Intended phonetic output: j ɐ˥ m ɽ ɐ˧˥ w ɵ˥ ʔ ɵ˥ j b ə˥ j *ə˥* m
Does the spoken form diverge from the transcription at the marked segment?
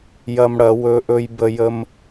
no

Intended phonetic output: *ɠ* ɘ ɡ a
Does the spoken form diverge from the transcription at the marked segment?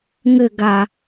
yes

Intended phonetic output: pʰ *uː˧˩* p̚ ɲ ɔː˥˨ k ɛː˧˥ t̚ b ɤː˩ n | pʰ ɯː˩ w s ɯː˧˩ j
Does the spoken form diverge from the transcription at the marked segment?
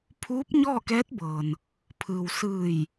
yes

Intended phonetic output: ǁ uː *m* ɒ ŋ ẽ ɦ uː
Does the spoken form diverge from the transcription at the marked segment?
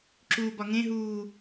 yes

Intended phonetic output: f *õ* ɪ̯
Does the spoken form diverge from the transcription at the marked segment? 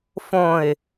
no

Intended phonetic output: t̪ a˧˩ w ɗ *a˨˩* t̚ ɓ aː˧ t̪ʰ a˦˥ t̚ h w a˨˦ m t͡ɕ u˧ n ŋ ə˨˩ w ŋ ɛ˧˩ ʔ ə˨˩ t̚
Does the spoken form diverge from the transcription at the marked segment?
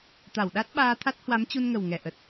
yes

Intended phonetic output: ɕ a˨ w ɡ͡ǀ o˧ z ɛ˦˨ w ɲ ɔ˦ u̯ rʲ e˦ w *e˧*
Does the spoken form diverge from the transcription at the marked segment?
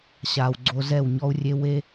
yes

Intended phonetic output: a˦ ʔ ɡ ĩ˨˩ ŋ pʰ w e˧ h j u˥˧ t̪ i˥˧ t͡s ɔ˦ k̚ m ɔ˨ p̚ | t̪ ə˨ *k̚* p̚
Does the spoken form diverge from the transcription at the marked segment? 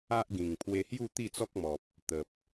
yes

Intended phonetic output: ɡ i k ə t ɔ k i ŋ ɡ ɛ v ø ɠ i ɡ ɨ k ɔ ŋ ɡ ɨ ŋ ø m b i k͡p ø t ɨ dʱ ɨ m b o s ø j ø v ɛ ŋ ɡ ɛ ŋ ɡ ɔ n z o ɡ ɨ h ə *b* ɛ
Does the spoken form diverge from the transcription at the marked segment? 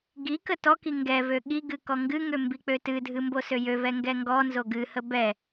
no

